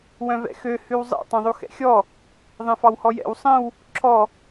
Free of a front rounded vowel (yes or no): no